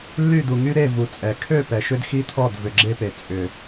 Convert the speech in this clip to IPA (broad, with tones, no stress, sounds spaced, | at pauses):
lː y˦˨ d u˨ ŋ y˦ ɾ e˦˨ v u˨ t͡sʼ ɛ˨ kʰ ø˦˨ p ɛ˨ ʃ ʏ˦ d x i˦ t̪ʰ ɔ˦˨ d v ʏ˨ ɡ͡ǁ e˦ p e˨ t͡sʼ ʏ˨